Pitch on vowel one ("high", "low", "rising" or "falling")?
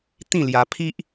falling